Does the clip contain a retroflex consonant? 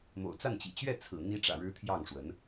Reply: yes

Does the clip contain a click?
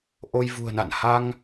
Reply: no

